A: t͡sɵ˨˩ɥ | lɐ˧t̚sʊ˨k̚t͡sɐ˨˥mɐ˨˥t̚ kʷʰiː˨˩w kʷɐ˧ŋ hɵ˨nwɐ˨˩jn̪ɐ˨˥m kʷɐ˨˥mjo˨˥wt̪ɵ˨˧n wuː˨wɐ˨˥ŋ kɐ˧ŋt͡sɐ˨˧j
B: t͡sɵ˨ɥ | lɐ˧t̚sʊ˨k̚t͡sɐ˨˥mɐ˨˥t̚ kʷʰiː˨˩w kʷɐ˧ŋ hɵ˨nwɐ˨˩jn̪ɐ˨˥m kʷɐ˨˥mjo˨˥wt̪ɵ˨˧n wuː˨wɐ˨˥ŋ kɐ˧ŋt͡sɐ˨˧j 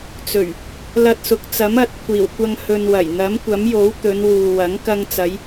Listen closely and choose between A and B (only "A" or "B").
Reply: A